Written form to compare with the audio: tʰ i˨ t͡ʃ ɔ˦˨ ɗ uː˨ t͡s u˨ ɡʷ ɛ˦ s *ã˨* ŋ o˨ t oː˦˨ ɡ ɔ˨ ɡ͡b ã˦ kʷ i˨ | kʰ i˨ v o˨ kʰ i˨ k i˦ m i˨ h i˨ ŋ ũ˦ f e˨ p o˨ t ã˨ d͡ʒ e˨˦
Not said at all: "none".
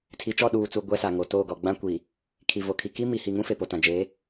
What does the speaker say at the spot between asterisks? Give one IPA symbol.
a˨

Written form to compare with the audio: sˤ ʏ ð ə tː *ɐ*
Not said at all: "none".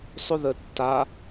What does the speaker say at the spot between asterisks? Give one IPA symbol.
a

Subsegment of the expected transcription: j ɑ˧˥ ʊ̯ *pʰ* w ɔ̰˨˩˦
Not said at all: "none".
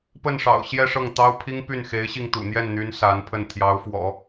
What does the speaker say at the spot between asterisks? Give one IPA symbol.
f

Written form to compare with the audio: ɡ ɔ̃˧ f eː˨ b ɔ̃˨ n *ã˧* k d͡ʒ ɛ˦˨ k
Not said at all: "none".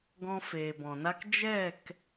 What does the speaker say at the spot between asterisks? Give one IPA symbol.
a˧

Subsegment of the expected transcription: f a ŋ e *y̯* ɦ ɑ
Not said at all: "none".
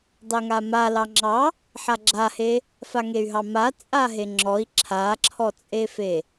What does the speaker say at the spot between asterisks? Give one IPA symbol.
y̯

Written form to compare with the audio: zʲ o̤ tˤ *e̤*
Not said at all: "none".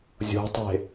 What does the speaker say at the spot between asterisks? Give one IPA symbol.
e̤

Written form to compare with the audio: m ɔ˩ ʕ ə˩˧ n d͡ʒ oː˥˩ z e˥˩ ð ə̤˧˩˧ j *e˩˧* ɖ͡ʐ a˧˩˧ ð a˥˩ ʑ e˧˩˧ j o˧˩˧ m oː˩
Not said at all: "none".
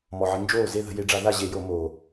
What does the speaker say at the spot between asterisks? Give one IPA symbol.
e˩˧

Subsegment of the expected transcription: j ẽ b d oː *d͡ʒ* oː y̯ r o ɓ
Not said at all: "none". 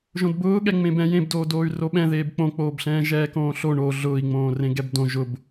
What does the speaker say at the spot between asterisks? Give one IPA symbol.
d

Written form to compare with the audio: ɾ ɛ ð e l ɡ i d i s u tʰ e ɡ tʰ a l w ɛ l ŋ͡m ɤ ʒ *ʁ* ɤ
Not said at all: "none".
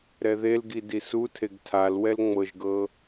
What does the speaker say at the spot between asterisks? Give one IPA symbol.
ɡ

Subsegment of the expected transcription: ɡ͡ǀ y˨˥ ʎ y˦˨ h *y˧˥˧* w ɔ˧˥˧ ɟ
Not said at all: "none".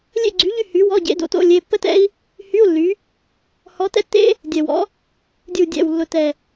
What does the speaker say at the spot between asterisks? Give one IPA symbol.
y˨˥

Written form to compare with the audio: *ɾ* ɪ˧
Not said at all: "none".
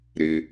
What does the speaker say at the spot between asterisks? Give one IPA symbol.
ɾ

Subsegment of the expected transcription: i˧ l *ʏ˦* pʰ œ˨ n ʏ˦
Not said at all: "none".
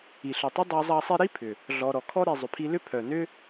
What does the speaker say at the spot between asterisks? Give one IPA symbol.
ʏ˦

